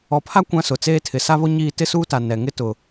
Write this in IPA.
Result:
ɔ˨pʰa˦ kʷã˦sʊ˨ t͡seː˦tʰɪ˨ sa˦βo˦ ɲiː˦ tɪ˦suː˦ta˨ nɛ˨ ŋɪ˦tʊ˨

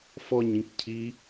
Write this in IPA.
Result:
fɔɲ ĩkcʰi

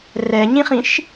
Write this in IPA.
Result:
rɛɲĩχĩʃ

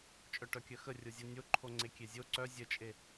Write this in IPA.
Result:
t͡ʃʼœʈœkʲœxə rʲozʲonʲoǃʰo ŋ͡ǀekʲezʲo ǀœ zʲət͡ʃʼe

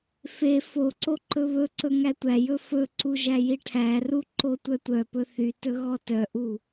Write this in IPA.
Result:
fe foǀo ǃɵβɵǀɵ ŋætʷæjɵ fɵǀu ʒæjiʈʰæru ǃotʷœtʷœpɵ θytɵ ɣɔtœʔu

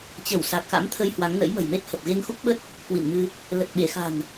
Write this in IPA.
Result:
t͡ɕə˧˩w sa˨˩k̚xa̰˧˥mt̪ʰə˧j hwa˨˦ŋ nə̰˧˥jmə̤˨˩jme˦˥t̚hə˨˩p̚ ɣe˧ŋxu˦˥k̚ɓə˦˥t̚ | kwḭ˧˨nmɨ˧ | lə˨˩t̚ɓe˧˩xa̤˨˩n

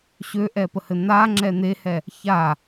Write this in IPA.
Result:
ɕøʔɛpəhɘ n̪aŋ͡ǁɛ n̪ehɛ | ça

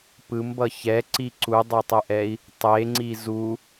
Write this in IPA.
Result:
pɯmbʌ çɛǀi ǀudˤʌtˤɯʔɛi̯ | tˤeŋ͡ǀi zu

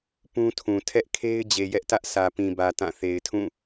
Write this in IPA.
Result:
pũ˦tʰũ˨ tʰɛ˦ʔkʰe˦ɪ̯ d͡ʑe˨jɛ˦ʔtä˦ʔ sä˨pĩ˨bä˨ tã˦˨ θe˨ɪ̯tʰũ˦˨

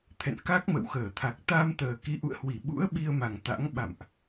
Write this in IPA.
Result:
t̪ʰɛ̰˧˨nka˦˥k̚ mə̰˧˨wxəː˧˩ t̪ʰa˨˩k̚ t̪a˧mt̪əː˨˩ ki˨˦ʔṵ˧˨ə̯hwi˧˩ɓṵ˧˥ə̯ ɓi˧ə̯ma˨˩ŋ t̪a̰˧˥ŋ ɓa̰˧˨mʔ

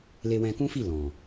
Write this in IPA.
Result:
le˧wɛ̃˧kũ˦fi˦˨ lɔ̃˨

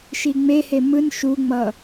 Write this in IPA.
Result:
ʃiŋ͡mehe mɯn ʃuŋ͡mʌ

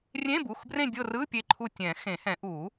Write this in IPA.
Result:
rʲẽ˧˥˧bu˩˧˩xbrẽ˦˨ dʲo˦˨rɯ˧˥˧ pʲe˦˨ǃʰu˦˨ tʲɛ̃˨˩˦ xẽ˨˩˦hɛ̃˨˩˦ ʔu˨˩˦

